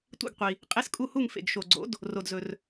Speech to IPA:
tʷḭ˦˨ɡqʷi˨ | qʼe˧˥skʼu˦˨hu˦˨ŋ fḛ˨ɡʃo˨ɡ͡ǀo̰˧˥d | ro˨dzɵ˨r

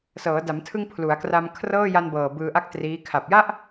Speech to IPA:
sɤː˩˦da˩˦mtʰɯ˧ŋ pʰlu˩˦a̯kra˧m kʰrɤː˥˩ja˧nbɤː˨˩ bɯː˧ʔa˥˩k̚triː˦˥ kʰa˨˩p̚ja˥˩ʔ

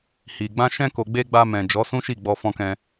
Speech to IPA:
hi˨ɡ͡bã˧ ʃɛ̃˧ ko˨ɡ͡be˧ ɡ͡ba˧mɛ̃˨ d͡ʒɔ˨˦sũ˦ʃi˦˨ ɡ͡bɔ˧fɔ̃˧kɛ̃˧

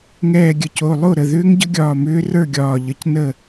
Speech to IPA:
ŋɛː˧˩ɡʲə˧˩co˩˧˩ lˠo˥˨ɾə˩˧˩ ðʏː˧˥ŋɟə˧˥ɡʲɒː˧˩ mʏː˧˥rə˞˥˨ɡʲɒː˧˩ʎə˧˩c nə˥˨

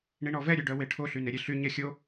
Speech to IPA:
ɳiɳɔvɛ ɾʲʉɖœweʈʰo ɬyneɾʲeɬy ɲɛxʲo

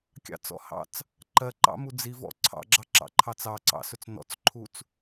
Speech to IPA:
kʲɑ̰t͡sɔ̰hɑ̰t͡s | ǃɜǃɑ̰mu d͡zivɔ̰ ǀʰɑ̰ɡ͡ǁɑǁɑ̰ǃʰɑt͡s ɑǀɑ̰sɵt͡s nɔ̰t͡sǃʰut͡s

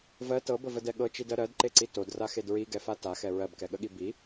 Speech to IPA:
vɜ tɤbəvədɛ ɠɤt͡ʃidɜ ɾɜdǃeǀi todraxed ɹiɡɛfa taxɛ ɹɜbkɛɠəɠi bi

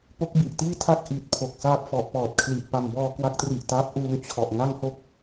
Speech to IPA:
po˦˥k̚bi˨˩ʔ tiː˥˩tʰa˥˩k̚ ʔi˨˩t̚pʰo˨˩k̚saː˦˥p̚ fɔ˨˩ʔpɔː˨˩t̚kʰli˨˩ʔ pa˨˩mbɔː˧kwa˦˥k̚tri˨˩ʔ ta˦˥p̚ʔuː˧ŋt͡ɕʰɔ˨˩ʔ ŋa˥˩ŋho˥˩k̚

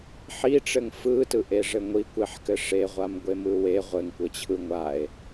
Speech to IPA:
ħiʈ͡ʂɘŋ fɯtɯʔeʐɘ ŋʷikʷeħkɘ ʂeʁʷamɡʷe mɯwe ʁʷɘŋkʷɘt͡ɕʰɯ ŋʷae̯

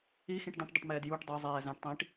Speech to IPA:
ixĩʈ də̃ʈdˤɪʈmɛːd juʈ dˤə˞zˤɛː zæ̃ʈtˤĩːʈ

